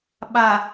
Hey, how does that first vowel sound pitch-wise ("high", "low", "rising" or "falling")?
low